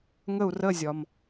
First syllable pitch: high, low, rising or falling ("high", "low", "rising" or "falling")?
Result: falling